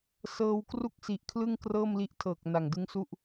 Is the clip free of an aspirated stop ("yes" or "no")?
no